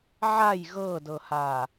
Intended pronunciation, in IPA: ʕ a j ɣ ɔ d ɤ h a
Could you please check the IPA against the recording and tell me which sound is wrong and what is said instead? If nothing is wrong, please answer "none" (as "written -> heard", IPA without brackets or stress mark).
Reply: ɔ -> ɤ